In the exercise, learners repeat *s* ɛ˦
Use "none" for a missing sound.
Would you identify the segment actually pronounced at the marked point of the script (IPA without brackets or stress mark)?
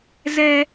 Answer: z